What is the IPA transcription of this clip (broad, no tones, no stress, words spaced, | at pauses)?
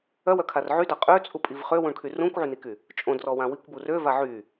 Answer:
œwœkʰar ʕyda qʼøt͡sʼupʼiv χøwũɳkʰy rũkʷʕyniky | t͡ʃʼõdrɔwã wikʷbu røva ʕy